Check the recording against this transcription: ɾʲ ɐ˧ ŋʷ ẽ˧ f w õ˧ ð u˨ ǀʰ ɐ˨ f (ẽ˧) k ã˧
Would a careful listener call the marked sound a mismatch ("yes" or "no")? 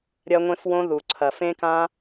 no